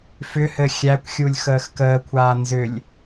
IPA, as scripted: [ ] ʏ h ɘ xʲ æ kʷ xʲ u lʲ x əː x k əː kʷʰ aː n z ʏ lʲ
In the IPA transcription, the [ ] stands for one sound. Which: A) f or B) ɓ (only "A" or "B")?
A